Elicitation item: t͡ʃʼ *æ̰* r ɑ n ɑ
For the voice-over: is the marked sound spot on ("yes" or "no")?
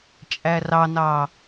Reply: no